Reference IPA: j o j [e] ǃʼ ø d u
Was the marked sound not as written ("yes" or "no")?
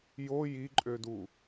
yes